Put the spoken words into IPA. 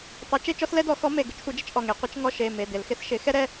tˤ e˨˥ t͡ʃ e˦ t͡ʃ ɔ˦ s l ɛ˦ d ɔ˨˩˦ x ɔ˨˥ m e˩˧˩ ɡ ɪ˨˥ t͡ʃ sʷ ɛ˨˥ d͡ʒ ɪ˨˥ t͡ʃ ʔ ɔ˩˧˩ ŋ e˨˩˦ qʷ ɪ˨˥ t͡ʃ ŋ ɔ˦ ʃ e˩˧˩ m e˩˧˩ d ɪ˨˩˦ l x ɪ˨˥ s ʃ ɪ˨˥ x ɛ˦ ɾ ɛ˩˧˩

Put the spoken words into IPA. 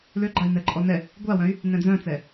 l ø ɡ͡ǃ a i̯ n ɛ ǃʼ ɔ n ɛ | ɡʷ a w œ̃ y̯ | n ɛ̃ d͡z œ̃ t͡s ɛ

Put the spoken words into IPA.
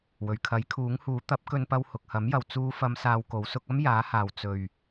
w ɵ˨˩ ɥ kʰ ɐ˨˥ j kʰ uː˨˥ ŋ h uː˨˥ t̪ ɐ˨˥ p̚ k ɵ˧ n p ɐ˧ w h ʊ˨ k̚ h ɐ˨˥ m j ɐ˨ w t͡s uː˨˧ f ɐ˨˧ m s aː˧ w k o˨˥ w s ʊ˨˥ k̚ ɐ˥ m j aː˨˥ h aː˨ w t͡s ɵ˨ ɥ

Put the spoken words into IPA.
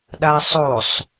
ɗ a sˤ o sˤ

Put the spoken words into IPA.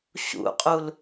ɕ ṵ qʼ u l

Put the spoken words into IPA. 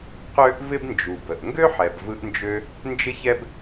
q ø˦ ʔ v ɪ˦ b n d͡ʒ u˨ b ə˨ ʔ ŋ ɡ ø˦ ħ ɛ˨ b v ɯ˧ ʔ n d͡ʒ ø˧ | n d͡ʒ ɪ˦ ç ɛ˦ b

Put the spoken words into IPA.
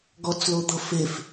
ɡ ɔ t͡s l o d̪ ɤ f e f

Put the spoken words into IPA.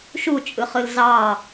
ʃ u t͡ʃʼ ɯ χ ɯ l z ɑ

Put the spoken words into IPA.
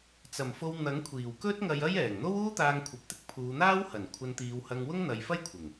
t͡s ɐ˨˩ m f o˧ w n̪ ɐ˨˥ ŋ kʷʰ iː˨˩ w k ɵ˥ t̚ ŋ ɐ˧ j ɐ˥ j ɛː˨˩ ŋ n̪ o˥ w uː˥ t̪ aː˧ ŋ kʷʰ ɐ˨˥ p̚ t̪ ɪ˥ k̚ pʰ uː˨˧ n̪ aː˥ w h ɐ˨˩ n kʷʰ ɐ˧ n t̪ iː˨˧ w h ɐ˧ ŋ w ʊ˥ ŋ n̪ ɐ˨˧ j f ɐ˥ j kʷʰ ɪ˨˩ ŋ

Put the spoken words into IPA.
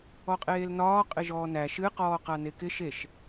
ɔ qʼ eː l n ɒː qʼ ɪ ʒ ɔː n æ ʃ ɨ q ɔː q a n e k ɪ ʃ e ʃ

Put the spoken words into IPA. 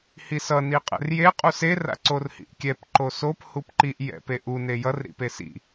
h i s ʌ n i qʼ ɛ̰ r j e qʼ u s e r a̰ ǀ o r h ḭ ʔ kʲ ɛ p ǃ o s o p h u p ǃ i ʔ j ɛ̰ p e ʔ u n e j ʌ r ɾ ḭ p e s ḭ

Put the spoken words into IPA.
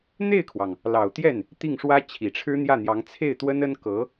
n̪ e˥˩ ɪ̯ kʰ w ɑ˩ ŋ | l ɑ˨˩ ʊ̯ t̪ j ɛ˥˩ n | t̪ i˥˩ ŋ ʂ w ä˥ t͡ɕʰ i˨˩ ʈ͡ʂʰ ɻ̩˥ n̪ j ä˥˩ n̪ j ɑ˧˥ ŋ t͡sʰ e˥˩ ɪ̯ t̪ w ə˥ n ə˥ n k ɤ˧˥

